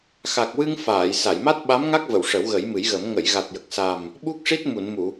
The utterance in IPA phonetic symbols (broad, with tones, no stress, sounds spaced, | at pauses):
x a˨˩ k̚ w ɨ˧ ŋ f aː˨˩˨ j s a˨˩˨ j m a˦˥ t̚ ɓ a˧˥ m ŋ a˦˥ k̚ v ə˨˩˨ w ʂ ə˨˩˦ w ɣ ə˨˩˦ j m ɨ˨˩˦ j ɣ ə˨˩˦ m ŋ ə˨˩˨ j ɣ a˨˩ t̚ j ə˨˩ k̚ s a˨˩ m | ɓ u˦˥ k̚ ʂ i˦˥ t̚ m u˨˩˨ n m u˨˩˨